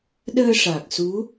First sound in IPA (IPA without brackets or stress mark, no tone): ɗ